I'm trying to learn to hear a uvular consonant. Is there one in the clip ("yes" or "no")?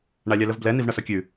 no